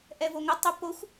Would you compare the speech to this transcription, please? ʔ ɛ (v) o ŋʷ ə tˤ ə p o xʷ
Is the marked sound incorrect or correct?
correct